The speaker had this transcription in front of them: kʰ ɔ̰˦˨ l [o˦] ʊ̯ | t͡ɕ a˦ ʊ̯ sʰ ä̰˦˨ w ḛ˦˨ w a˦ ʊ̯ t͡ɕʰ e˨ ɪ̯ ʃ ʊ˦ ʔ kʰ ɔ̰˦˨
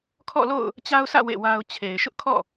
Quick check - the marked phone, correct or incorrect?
incorrect: o̰˦˨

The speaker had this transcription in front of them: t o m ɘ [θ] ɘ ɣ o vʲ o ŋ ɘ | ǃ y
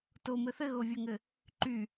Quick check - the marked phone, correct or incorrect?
correct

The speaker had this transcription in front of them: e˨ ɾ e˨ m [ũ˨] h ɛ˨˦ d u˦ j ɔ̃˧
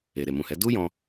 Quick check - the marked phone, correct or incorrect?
correct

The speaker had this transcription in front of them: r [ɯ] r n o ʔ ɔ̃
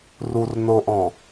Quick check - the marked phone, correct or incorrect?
incorrect: u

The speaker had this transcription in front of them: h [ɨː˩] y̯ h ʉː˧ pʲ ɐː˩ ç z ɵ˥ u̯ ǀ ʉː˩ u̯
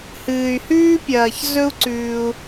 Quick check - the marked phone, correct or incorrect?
correct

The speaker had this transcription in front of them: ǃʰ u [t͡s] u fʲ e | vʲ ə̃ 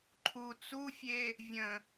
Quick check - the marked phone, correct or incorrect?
correct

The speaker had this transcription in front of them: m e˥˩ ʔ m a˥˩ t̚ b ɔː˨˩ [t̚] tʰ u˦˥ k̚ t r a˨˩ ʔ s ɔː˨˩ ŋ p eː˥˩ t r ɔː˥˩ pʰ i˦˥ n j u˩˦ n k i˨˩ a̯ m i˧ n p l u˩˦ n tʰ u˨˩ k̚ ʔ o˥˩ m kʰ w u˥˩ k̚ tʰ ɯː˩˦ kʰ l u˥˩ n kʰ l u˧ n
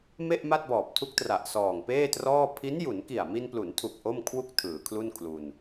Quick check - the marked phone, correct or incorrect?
incorrect: p̚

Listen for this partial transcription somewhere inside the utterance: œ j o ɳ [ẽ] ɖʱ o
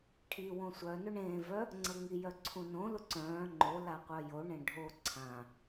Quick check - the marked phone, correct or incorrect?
correct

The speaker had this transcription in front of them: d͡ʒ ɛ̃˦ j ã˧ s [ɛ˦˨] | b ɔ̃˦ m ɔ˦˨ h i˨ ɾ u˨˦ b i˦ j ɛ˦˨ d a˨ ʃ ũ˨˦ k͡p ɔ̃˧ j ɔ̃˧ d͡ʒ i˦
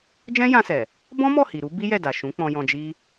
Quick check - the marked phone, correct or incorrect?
incorrect: ɛ˨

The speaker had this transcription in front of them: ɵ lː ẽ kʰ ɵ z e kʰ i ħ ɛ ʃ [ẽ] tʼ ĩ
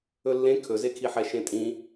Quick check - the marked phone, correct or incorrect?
correct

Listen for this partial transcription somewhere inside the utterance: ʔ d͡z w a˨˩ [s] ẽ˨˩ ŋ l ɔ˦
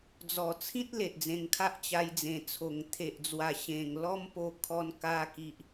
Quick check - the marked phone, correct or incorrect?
incorrect: ɕ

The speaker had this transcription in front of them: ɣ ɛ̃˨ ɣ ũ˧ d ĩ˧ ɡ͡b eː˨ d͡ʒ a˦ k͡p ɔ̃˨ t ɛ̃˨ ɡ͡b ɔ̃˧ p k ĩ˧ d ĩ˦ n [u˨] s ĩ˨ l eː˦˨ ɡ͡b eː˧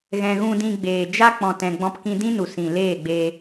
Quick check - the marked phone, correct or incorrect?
correct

